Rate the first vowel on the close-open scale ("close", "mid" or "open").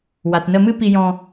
open